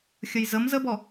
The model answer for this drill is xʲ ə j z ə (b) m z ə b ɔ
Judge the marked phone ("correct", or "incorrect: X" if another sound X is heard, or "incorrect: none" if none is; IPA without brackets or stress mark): incorrect: none